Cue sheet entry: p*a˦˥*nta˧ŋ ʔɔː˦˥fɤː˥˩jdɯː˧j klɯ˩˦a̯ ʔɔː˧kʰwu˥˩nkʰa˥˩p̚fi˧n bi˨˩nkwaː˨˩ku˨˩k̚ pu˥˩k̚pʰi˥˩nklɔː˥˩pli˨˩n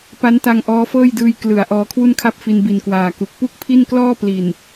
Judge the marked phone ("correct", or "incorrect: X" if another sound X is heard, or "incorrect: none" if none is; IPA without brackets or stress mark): correct